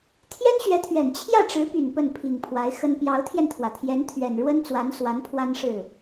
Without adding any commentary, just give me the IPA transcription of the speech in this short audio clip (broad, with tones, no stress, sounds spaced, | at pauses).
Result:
t̪ʰ j ɛ˥ n ɕ ɥ ɛ˧˥ t̪ʰ ɥ ɛ˨˩ n t͡ɕʰ j ä˥˩ ʈ͡ʂ ɻ̩˧˥ p y˨˩ n p ə˥˩ n pʰ i˨˩ ŋ pʰ w a˧˥ ɪ̯ x ə˥ n p j ɑ˧˥ ʊ̯ t̪ʰ j ɛ˧ n t̪ʰ w ä˩ t̪ʰ j ɛ˧˥ n t̪ʰ ɥ ɛ˨˩ n ɻ w ə˥ n t͡s w a˧˥ n s w a˧˥ n pʰ w a˥ n ʂ ɻ̩˥˩